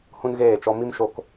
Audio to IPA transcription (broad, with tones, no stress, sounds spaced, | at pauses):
h ũ˦ n ɣ eː˦˨ t͡ʃ ɔ˧ m i˦ m ʃ o˦ k